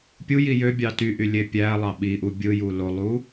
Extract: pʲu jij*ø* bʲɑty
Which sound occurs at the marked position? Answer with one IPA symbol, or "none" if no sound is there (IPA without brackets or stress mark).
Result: ø